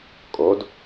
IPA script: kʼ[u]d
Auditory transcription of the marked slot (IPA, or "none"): o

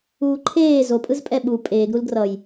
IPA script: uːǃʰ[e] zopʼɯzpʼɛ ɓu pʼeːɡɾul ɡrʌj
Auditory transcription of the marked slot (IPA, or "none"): eː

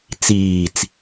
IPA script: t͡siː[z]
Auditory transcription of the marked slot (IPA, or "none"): t͡s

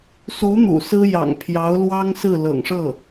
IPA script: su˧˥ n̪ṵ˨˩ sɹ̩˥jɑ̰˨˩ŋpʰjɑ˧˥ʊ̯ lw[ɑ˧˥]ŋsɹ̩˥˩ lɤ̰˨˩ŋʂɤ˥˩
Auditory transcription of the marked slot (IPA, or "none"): ɑ˥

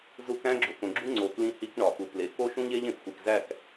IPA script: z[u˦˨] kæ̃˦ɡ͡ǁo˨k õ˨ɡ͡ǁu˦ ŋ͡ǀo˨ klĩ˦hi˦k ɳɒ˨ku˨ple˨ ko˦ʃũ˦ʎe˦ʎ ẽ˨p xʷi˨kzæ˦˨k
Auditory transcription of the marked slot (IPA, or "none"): u˦˨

